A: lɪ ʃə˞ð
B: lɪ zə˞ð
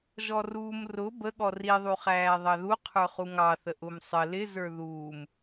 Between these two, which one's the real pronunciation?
B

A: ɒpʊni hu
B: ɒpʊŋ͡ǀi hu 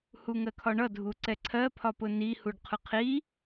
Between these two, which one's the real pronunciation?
A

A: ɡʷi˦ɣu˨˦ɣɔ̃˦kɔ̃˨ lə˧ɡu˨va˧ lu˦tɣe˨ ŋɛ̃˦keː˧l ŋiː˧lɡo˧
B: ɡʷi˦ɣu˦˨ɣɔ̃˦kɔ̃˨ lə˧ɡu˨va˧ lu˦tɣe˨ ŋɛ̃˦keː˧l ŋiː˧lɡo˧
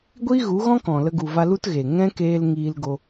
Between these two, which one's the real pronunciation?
A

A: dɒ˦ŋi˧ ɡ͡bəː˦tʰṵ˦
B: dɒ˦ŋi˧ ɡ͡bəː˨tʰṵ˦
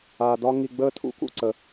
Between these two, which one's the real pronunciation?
A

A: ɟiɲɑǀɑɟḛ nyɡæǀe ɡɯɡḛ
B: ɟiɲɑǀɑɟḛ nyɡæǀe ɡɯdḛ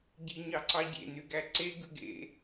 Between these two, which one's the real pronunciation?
A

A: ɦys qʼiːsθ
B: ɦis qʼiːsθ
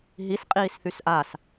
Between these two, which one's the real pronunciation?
B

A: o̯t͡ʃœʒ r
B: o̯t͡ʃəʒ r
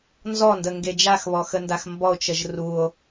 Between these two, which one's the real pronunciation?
B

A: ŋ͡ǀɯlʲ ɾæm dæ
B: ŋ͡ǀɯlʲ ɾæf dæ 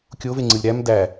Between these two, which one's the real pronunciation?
A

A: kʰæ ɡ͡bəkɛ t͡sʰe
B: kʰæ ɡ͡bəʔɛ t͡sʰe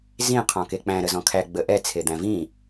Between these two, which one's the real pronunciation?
B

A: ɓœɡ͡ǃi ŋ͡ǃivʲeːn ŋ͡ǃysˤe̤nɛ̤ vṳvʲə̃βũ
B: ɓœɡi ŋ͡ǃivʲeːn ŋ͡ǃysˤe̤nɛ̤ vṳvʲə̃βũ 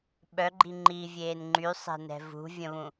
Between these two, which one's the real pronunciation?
A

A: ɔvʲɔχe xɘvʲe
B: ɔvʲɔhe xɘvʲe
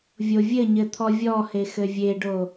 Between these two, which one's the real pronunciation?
B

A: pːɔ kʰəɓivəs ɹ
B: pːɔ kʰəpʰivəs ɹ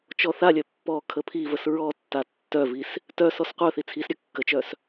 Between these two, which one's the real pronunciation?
B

